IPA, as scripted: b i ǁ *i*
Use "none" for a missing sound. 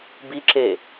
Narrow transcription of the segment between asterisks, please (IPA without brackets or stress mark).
e